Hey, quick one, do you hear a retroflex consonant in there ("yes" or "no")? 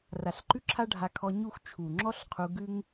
yes